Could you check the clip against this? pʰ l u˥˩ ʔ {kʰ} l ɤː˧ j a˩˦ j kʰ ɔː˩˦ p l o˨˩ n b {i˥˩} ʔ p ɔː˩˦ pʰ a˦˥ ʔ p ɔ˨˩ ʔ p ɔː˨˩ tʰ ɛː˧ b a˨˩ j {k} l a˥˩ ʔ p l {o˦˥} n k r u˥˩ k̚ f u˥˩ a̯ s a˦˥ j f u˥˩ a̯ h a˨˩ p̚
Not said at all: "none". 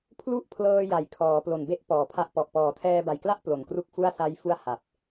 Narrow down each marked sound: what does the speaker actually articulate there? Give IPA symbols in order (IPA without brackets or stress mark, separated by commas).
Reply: pʰ, e˥˩, k, o˨˩